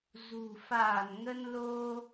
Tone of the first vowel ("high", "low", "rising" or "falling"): low